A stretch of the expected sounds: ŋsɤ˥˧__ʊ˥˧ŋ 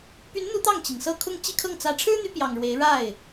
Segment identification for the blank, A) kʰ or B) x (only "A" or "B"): A